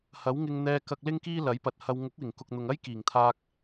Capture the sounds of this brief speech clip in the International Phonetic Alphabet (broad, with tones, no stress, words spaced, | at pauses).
hɐ˨˥wŋɪ˧ŋ n̪ɛː˧kɐ˧k̚lɪ˥ŋkiː˥ lɐ˨˥jpɐ˨˥t̚hɐ˧w ŋʊ˨˥k̚wɪ˨˩ŋ kʊ˨k̚n̪ʊ˨ŋɐ˥j kiː˨˩ŋt̪ʰaː˧k̚